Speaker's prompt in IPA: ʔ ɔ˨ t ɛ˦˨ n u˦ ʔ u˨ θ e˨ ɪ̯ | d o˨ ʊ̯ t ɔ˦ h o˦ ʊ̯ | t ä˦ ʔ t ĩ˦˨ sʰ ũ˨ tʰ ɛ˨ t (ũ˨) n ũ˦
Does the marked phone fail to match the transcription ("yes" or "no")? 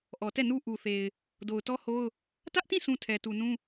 yes